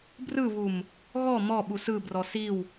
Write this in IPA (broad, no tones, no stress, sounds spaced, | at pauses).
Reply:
b r ɯ β u m | ɣ ɔ m ɔ ɓ u s ɯ b r ɔ s i w